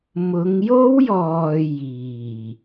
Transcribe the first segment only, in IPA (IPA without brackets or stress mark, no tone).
m